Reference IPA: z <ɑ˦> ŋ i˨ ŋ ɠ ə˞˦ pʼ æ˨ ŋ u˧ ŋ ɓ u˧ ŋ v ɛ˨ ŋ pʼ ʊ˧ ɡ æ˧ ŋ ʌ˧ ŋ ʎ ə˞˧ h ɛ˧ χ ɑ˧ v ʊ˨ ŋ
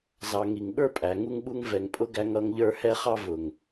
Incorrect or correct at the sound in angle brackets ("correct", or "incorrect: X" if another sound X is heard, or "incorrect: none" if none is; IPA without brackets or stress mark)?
incorrect: ɑ˨